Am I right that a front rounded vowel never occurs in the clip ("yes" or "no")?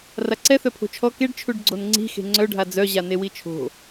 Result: no